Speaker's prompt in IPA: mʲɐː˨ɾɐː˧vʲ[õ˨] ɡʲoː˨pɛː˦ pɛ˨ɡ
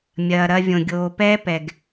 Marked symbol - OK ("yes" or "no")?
yes